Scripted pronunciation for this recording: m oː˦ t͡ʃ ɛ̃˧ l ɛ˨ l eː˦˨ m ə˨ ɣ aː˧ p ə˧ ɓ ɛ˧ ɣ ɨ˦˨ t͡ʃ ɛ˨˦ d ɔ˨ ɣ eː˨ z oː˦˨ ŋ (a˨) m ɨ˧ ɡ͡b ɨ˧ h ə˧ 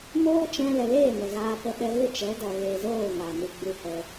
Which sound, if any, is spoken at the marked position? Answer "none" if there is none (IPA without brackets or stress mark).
a˨